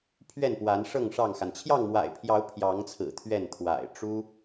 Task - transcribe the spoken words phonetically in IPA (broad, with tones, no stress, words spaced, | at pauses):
pʰɥɛ˥˨npwa˨˦nʂɤ˥˨ŋ ʂɑ˥˨ŋxa˩n t͡ɕʰjɑ˥˨ŋmwa̰˨˩ɪ̯pʰjɑ˨˦ʊ̯ pʰjɑ˨˦ŋt͡sʰɹ̩˨˩ t̪ʰɥɛ˥˨n t̪ʰwa̰˨˩ɪ̯ ʈ͡ʂu˦